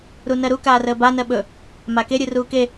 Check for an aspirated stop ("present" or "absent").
absent